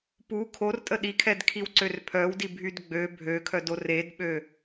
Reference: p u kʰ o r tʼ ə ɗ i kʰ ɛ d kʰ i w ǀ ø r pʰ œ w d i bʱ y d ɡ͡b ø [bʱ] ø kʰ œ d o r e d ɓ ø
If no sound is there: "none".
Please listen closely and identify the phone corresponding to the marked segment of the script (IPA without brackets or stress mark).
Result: bʱ